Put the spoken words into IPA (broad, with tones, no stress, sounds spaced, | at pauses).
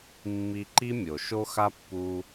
mː i˧ ǃ i˦ mʲ o˨ ʃ o˧ x a˧ pː u˧